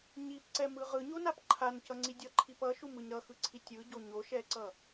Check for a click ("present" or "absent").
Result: present